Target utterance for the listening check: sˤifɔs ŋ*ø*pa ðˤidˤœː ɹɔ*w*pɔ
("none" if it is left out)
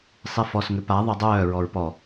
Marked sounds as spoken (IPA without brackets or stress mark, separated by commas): ø, ɹ